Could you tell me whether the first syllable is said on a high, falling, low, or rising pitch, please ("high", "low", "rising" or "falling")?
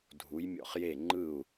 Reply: rising